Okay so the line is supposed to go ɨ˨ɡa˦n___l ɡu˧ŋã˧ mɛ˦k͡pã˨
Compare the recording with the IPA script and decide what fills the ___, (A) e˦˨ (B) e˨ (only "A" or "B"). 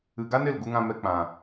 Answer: A